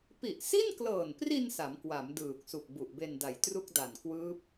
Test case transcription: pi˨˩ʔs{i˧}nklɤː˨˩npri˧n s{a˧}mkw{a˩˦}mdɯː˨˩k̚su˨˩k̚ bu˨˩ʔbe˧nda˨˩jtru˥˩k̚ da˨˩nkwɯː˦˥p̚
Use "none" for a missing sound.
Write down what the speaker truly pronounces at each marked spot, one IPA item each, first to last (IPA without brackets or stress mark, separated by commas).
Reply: i˥˩, a˩˦, a˩˦